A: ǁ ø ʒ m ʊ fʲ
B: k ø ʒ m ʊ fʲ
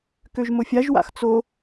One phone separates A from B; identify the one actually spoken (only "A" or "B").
B